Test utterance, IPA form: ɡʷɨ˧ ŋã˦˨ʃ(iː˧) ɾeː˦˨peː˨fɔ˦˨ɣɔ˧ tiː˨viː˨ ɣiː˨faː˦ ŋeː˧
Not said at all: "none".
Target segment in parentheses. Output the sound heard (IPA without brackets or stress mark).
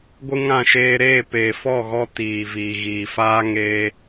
eː˧